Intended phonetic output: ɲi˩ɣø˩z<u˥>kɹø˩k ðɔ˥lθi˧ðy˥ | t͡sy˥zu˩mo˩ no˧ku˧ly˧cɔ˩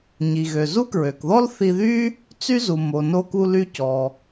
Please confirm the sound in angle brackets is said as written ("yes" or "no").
yes